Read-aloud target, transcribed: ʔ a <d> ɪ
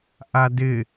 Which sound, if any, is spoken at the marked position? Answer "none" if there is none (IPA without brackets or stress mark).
d